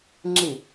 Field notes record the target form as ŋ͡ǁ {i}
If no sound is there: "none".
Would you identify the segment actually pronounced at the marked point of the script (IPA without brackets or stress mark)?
i